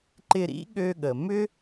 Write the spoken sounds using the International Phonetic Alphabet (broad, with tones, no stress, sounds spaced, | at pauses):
ǃ ɪ˧ ɾ ḭ˥ ɠ ø˧ ɠ ə˩ m ʏ˥